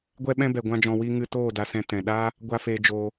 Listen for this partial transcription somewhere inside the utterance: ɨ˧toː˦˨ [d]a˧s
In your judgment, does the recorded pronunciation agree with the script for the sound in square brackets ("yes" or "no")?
yes